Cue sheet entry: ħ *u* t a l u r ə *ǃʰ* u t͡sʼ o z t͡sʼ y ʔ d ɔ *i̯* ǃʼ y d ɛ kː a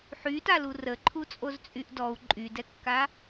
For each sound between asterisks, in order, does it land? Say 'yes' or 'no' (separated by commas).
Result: no, yes, no